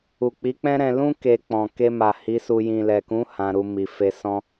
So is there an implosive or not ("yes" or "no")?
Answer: no